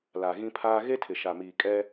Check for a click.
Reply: absent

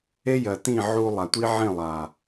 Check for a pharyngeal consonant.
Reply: present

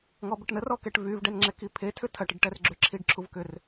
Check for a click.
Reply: present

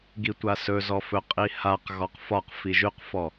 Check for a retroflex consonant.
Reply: absent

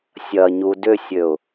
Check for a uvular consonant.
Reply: absent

